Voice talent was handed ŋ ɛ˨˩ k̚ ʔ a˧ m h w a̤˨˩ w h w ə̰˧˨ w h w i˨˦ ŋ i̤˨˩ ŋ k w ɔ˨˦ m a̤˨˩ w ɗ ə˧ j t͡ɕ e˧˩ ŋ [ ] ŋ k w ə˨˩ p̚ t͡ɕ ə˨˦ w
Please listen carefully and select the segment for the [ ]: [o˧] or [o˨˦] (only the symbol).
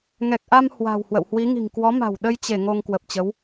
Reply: o˧